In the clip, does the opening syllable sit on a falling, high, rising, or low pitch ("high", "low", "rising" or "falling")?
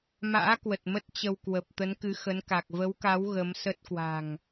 rising